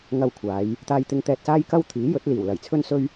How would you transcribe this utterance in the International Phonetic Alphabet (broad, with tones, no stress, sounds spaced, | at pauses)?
ŋ ɐ˧ w kʷʰ aː˨˧ j | t̪ aː˧ j t̪ ɪ˧ ŋ t̪ ɛː˧ t̚ s aː˥ j k ɐ˥ w t̪ʰ iː˨˥ j ɵ˨˥ t̚ l iː˨˩ w l ɐ˨˩ j t͡sʰ ɵ˥ n s ɵ˥ ɥ